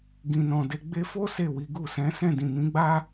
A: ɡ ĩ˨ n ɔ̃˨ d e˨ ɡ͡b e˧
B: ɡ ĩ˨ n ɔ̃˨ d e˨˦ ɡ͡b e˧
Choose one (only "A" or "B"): B